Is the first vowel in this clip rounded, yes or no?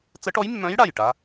no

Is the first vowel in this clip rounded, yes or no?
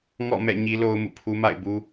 yes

